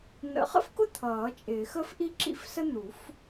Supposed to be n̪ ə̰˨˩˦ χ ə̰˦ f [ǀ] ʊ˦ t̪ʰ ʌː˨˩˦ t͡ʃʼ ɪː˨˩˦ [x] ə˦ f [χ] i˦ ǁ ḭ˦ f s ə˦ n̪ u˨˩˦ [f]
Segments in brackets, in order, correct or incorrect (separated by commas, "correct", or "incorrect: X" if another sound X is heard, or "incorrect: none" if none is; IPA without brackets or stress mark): incorrect: k, correct, incorrect: ʔ, correct